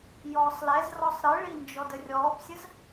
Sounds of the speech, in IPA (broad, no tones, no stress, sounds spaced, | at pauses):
j ɔː sˤ l ɛ z r ɔ sˤ ɾ ɨ ɭ i n d͡ʒ ɔ d ə rʲ ɔː p sʲ ə z